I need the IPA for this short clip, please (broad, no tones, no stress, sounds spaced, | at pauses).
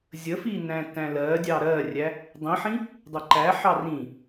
zʲ ə f i n æ̃ t æ̃ l ɜ dʲ ɑ ɾ ɜ rʲ æ | dˤ ĩ ħ ĩ | dˤ ə ǃ æ ħ ɑ r ĩ